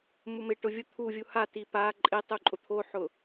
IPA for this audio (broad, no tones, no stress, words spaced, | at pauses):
mumɪ ʈʊvʲʊ t̪ʰuvʲu hati pa ǃʼɪtˤu ǃʼʊt̪ʰoħʊ